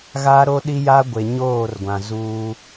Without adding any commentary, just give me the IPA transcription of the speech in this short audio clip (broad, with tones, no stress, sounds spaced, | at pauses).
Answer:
ɣ a˦ ɾ o˦ ɗ i˦ j a˦ ɡʷ e˨ ɲ oː˦˨ r ɡʷ ã˨ z uː˦